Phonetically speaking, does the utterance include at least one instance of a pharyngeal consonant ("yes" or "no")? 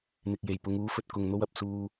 no